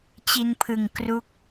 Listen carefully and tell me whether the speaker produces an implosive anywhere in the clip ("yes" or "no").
no